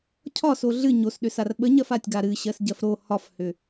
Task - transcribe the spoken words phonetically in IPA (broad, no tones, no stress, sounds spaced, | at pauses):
cʰ ɒ s o ɮ ɨ ɲ o s ɗ ʏ s a r ɓ ə ɲ ɜ f a tʲ ɡ a ɾ ɨ ɕ ɜ s ɟ ɜ f ɾ o h ɒ f h ʏ